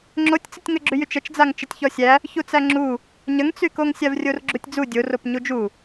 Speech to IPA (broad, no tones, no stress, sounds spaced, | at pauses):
ŋ͡ǁ o tʲ t͡s ə tʲ ŋ ə ɡ͡ǁ y j y t͡ʃ ə t͡ʃ d͡z a ŋ t͡ʃ ə tʲ ç ɔ sʲ æ | ç u t͡s æ ŋ͡ǁ u | ɲ ə ŋ t͡s y k o ŋ sʲ a v rʲ o r ɡ͡ǁ u tʲ d͡z u dʲ o r o p ɲ u d͡ʒ u